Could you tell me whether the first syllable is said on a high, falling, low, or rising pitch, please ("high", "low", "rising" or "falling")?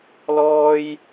high